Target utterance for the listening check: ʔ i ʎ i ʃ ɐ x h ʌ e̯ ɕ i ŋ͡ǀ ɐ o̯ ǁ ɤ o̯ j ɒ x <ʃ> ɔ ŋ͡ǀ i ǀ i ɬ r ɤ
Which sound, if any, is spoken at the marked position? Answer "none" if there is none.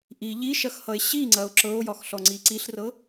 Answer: ɬ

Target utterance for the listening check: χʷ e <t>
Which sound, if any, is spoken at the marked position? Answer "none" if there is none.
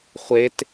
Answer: t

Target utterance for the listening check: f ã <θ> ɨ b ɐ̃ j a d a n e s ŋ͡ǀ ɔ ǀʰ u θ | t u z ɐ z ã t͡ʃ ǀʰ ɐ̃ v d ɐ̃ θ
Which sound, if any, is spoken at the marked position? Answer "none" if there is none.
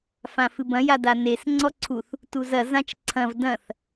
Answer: f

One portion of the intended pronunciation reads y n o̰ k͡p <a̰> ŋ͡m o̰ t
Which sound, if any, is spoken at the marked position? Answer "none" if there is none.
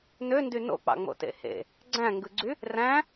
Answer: ɑ̰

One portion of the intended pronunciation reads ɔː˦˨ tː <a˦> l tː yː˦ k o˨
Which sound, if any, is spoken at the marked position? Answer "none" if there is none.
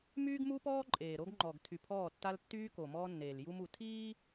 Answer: a˦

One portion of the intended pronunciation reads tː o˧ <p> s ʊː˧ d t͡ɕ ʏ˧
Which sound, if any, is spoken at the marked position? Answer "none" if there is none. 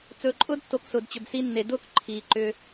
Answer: k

